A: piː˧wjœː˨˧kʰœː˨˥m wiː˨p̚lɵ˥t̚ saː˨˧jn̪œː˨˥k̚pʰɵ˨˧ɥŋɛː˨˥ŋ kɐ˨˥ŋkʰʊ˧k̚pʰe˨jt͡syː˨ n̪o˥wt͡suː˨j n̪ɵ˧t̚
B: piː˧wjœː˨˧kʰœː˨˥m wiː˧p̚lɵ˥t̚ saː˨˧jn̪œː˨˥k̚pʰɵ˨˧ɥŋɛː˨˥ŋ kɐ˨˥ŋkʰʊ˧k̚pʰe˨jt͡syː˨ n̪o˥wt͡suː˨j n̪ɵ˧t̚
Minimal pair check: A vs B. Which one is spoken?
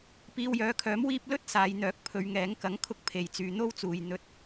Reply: B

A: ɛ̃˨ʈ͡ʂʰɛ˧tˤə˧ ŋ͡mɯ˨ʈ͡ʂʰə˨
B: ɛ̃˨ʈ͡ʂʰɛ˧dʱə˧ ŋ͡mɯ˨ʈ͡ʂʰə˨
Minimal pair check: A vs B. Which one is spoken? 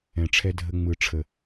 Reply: B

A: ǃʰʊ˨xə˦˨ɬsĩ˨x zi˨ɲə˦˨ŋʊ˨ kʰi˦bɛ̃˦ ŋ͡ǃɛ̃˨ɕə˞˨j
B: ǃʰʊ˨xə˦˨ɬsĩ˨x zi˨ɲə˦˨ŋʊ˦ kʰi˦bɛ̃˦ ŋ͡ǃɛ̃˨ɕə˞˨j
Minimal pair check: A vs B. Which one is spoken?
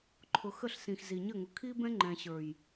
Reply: A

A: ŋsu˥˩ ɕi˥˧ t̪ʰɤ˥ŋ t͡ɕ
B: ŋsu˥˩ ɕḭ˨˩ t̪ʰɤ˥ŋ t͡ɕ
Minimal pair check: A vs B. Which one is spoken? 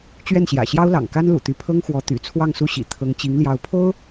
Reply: B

